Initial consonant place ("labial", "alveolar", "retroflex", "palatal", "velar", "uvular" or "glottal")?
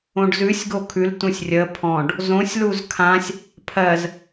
retroflex